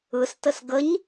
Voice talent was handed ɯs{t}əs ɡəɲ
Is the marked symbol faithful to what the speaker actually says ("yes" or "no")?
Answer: yes